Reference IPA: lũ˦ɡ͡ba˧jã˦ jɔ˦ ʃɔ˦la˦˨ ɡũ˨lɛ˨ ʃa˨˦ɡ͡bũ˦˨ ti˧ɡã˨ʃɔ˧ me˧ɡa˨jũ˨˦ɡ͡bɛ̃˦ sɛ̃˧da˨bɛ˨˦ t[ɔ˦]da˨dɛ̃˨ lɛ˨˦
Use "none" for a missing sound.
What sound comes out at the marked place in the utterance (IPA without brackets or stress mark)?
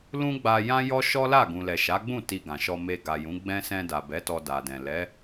ɔ˧